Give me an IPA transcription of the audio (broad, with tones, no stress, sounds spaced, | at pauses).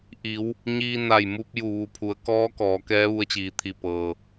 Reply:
ʔ i˩˧ w | ɲ iː˧ n a˧˩ j m u˧ p̚ j u˧˩ ʋ u˧˩ pʰ u˩˧ ə̯ k ɔː˧˥ k ɔː˩˧ k ɛː˧˥ ʋ u˧ ə̯ t͡ɕ iː˩ t̪ʰ i˧˩ p ɤː˩